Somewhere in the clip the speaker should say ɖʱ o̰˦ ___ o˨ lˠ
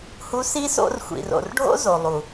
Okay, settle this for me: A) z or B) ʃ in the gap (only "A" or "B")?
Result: A